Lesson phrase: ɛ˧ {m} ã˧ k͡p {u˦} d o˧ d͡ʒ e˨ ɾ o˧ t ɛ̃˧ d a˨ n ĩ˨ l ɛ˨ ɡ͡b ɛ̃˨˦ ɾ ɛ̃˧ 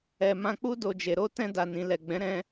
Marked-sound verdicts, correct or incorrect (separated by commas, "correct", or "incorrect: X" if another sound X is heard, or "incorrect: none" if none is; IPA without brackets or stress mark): correct, correct